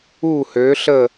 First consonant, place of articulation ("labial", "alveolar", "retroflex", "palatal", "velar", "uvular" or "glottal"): glottal